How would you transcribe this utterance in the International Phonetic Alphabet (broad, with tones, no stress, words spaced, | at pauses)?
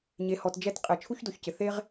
ɲe˩hɔ˩td͡ʒɛ˥t qʼɛ˩t͡ʃʰu˥çdo˩çcɪ˩ θe˥ʁ